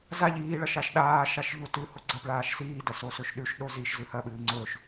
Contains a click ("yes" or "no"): yes